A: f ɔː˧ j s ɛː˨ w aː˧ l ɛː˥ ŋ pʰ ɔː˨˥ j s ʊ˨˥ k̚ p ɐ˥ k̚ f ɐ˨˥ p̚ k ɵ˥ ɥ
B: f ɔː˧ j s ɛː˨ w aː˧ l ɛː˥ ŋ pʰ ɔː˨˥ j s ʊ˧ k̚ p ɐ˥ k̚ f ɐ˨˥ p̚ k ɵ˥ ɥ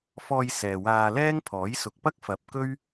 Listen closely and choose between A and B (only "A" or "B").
A